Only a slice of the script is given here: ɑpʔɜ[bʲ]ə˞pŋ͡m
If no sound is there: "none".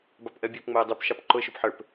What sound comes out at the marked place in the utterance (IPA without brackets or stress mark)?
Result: bʲ